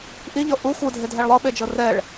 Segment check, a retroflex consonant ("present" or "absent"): present